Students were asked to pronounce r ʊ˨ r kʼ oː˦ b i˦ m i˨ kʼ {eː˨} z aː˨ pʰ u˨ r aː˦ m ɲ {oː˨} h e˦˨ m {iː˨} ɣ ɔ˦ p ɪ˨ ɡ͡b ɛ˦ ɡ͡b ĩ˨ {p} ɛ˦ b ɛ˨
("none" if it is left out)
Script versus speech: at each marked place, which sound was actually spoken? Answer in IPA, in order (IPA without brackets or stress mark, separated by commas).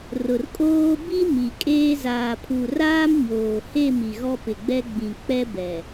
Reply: eː˦, oː˨, i˨, k͡p